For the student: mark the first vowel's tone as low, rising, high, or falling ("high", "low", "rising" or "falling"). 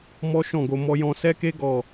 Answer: high